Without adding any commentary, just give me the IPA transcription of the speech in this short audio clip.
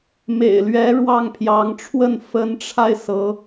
m ḛ˨˩ ɪ̯ l ɥ ɛ˧˥ ɻ w ɑ˥˩ ŋ pʰ j ɑ˧˥ ŋ ʈ͡ʂʰ w ə˥˩ n f ə˧˥ n ʈ͡ʂʰ a˧ ɪ̯ s ɤ˧˥

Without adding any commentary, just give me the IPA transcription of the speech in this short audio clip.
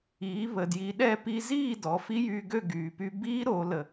iː˩˧ β ə˩ d j i˩˧ ɗ ɛ˥˨ p i˧ z iː˥˨ d ɔ˩˧ f i˦˥ j yː˧ ɡ ø˥˨ ɡ yː˩ p y˧ b i˦˥ ɾ o˩˧ l ə˩

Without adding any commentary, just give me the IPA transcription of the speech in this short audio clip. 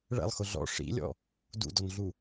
ɭ ɛ̰ lˠ x ʊ ɮ ɔ̰ ʂ ḭ lʲ ɔ̰ | d ṵ d ɔ n ɮ u

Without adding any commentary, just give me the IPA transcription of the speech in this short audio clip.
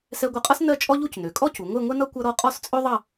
s ɛ˧ ɡʷ ʌ˧˩ qʼ ʌ˥ s n ɜ˥˧ t͡ʃʼ ɔ˥ ʎ u˥˧ c n ø˩˧ kʼ ɔ˥ c u˩˧ ŋʷ ɛ˥˧ ŋʷ ɛ˥ n ʌ˥ kʷ ʌ˥ ɾ ɔ˥ qʼ ɔ˥˧ s t͡sʼ ø˥ ðˤ ʌ˥˧

